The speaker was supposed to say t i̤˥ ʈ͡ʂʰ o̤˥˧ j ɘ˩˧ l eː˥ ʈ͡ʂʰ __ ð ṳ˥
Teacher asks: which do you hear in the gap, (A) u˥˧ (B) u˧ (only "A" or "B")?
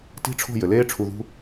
B